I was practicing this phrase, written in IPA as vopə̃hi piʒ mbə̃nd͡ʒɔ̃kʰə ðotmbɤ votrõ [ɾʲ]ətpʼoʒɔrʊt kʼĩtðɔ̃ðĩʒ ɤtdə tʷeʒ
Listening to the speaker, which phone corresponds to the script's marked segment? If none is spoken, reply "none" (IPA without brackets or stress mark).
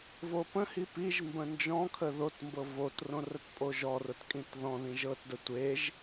r